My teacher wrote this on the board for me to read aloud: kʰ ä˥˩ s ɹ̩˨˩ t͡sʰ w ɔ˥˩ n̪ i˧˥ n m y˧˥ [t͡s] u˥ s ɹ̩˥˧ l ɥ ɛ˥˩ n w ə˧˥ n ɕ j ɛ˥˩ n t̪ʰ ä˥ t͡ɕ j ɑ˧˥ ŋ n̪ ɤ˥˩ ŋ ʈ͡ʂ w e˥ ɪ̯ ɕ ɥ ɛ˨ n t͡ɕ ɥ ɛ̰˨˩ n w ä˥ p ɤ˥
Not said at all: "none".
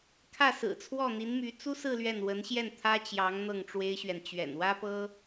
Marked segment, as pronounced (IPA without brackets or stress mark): t͡s